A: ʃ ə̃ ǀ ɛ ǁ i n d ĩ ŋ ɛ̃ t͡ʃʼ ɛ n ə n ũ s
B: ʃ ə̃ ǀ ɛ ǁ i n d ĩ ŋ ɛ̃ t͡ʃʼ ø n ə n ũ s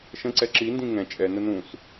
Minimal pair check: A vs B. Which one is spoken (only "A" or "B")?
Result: A